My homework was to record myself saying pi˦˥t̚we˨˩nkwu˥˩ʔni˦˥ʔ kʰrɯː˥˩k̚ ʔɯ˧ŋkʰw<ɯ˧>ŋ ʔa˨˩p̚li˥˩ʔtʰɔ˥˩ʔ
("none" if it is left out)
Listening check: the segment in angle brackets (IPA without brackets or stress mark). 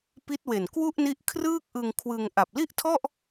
ɯ˧